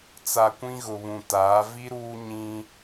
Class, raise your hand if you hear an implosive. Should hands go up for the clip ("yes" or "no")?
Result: no